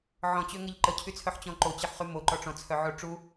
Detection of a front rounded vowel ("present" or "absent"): present